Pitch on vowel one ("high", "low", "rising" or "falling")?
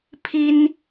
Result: high